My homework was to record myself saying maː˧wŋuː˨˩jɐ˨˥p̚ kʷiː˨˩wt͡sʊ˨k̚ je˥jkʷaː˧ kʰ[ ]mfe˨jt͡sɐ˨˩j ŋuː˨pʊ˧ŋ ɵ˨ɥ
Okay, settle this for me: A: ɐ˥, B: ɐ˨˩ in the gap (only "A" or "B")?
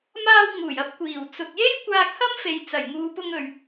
A